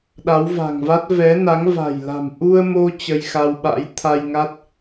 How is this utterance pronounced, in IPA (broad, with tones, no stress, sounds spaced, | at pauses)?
ɗ a˨˦ w v a̤˨˩ ŋ v a˦˥ t̚ v ɛ˨˦ n a˨˦ ŋ v a̤˨˩ j l a̤˨˩ m ʔ u˧ ə̯ m o˧ t͡ɕ ə˧ j x a˧ w ɓ a̰˧˥ j t̪ʰ a˧ j ŋ a˦˥ t̚